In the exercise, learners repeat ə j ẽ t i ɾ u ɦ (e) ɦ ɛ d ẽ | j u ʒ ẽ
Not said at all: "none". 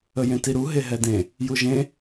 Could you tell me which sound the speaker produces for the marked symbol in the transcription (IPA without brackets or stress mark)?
e